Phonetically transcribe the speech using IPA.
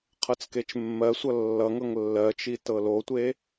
qʰ ɤ t͡s k e t͡ʃ mː ɜ sʷ ʌ lː ʌ ŋ ɤ ŋ lː ɜ t͡ʃ i t ɤ l o tʷ e

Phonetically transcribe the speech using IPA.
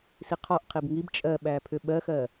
s i qʰ ɔ ʔ qʰ i b ŋ i b t͡ʃʼ ɜ ɓ æ pʰ ʏ ɓ ɜ x ɜ

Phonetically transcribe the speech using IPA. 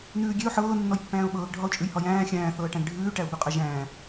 n ʉː ɡʲ e ʊ̯ ħ ɤː nː ɔ j pː æ̃ː ʊ̯ ɓ ɤː ɡ ɖʱ ɒ ʊ̯ t͡ʃʼ ʉ j h ɒ j æ̃ː xʲ æ̃ː θ ɤː ʈ æ̃ ɡ ɖʱ ʉː ʈ æ ʊ̯ b ʉ qʼ ɛ ʒ æ̃ː

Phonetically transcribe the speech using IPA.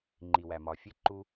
ŋ͡ǃ i˨ w æ˨ m ɒ˨ fʲ e˦ ǃ u˦

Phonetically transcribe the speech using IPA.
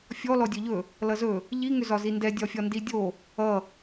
fʲ ɔ l ɔ dʲ ɵ ʎ ɵ | l ʌ z ɵ | ʎ i ŋ ʏ z ɒ z i n d ɛ dʲ ɒ fʲ ɒ n d i dʲ o | ʌ

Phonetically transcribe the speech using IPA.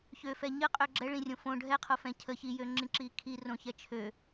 ç ø f ɛ ɲ ə qʼ ø ɡ͡ǁ ɛ ɭ ĩ rʲ õ f õ ɖʱ ɛ qʰ o f ɛ̃ cʰ ə ç i j ø ŋ͡ǁ ĩ ǁ i kʰ i r õ ç ɛ t͡ʃʰ ø

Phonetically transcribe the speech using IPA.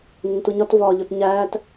ŋ ɪ ŋ t u ɲ ɒ t v ɒː ʎ ʊ t ɲ æː t

